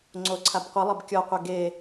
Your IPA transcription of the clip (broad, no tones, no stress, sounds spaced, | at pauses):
ŋ͡ǀ o ǀʰ a b qʷ ɯ lˠ ɤ b kʲ ɔ qʷ ɛ ɡ e